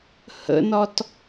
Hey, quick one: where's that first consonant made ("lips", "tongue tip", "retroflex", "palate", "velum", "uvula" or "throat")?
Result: throat